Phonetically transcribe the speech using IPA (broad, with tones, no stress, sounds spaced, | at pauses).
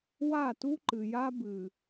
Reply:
w a˦˨ t u˦ ǃ ɨ˨ j a˦ b ɨ˨